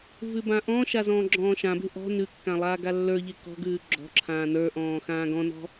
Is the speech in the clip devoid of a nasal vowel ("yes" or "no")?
no